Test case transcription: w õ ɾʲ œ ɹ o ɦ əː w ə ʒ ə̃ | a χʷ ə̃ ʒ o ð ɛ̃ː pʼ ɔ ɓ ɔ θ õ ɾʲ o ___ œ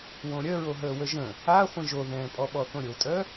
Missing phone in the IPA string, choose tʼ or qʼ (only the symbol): tʼ